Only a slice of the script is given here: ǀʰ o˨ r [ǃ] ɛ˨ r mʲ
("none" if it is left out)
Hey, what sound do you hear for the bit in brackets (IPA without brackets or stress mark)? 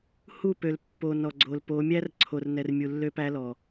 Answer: n